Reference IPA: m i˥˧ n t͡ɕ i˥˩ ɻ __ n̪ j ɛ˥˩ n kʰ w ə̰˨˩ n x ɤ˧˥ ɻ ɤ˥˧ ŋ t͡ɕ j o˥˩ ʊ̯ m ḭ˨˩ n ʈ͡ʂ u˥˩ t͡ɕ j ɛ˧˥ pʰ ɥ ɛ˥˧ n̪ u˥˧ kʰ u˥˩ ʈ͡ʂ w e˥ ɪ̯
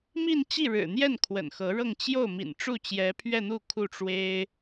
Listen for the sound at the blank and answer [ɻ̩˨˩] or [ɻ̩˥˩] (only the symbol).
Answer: ɻ̩˨˩